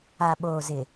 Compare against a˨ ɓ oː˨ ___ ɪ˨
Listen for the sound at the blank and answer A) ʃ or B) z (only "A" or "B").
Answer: B